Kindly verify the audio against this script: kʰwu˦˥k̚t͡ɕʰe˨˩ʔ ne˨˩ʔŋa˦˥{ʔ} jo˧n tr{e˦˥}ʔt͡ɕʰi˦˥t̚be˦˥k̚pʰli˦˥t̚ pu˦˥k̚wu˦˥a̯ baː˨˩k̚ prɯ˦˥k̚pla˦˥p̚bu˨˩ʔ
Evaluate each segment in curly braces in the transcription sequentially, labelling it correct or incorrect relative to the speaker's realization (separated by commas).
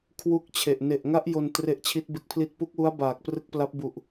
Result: correct, correct